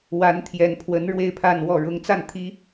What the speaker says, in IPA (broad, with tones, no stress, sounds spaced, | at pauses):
w a˧˥ n t̪ʰ j ɛ˨˩ n pʰ w ə˧˥ n ɻ w e˥˧ ɪ̯ pʰ a˥˧ n w ɔ˥˩ ɻ ʊ˧˥ ŋ t͡s a˥˩ n t̪ʰ i˥